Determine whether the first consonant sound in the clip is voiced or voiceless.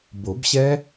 voiced